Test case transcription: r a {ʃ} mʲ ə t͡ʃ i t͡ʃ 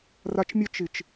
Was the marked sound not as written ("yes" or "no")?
yes